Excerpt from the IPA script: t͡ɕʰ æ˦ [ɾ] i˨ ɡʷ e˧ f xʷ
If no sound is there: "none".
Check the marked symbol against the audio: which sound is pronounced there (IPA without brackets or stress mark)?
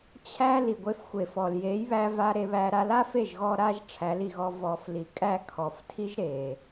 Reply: l